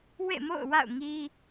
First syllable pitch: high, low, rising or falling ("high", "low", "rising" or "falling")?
falling